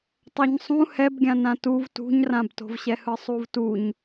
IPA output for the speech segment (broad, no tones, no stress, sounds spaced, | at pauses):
tˤ a ɲ sˤ ũ h ɛ b ɡʲ ã n ã t u v t ṳ ɲ r ã b t o̤ v ɕ ɛ h ɯ sˤ u v t u ɲ